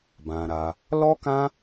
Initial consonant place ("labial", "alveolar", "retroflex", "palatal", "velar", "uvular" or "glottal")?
labial